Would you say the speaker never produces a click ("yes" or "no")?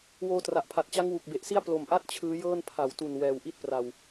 yes